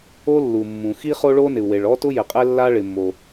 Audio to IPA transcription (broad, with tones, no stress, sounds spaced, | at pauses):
o˥ lː u˩ mː ũ˩ x i˥ χ o˥ ɭ o˥ n ɪ˩ u̯ w e˩ ɭ ɔ˥ t ʊ˥ j ɪ˩ qʼ ɛ˥ lː a˥ ɭ ɪ˩ mː o˩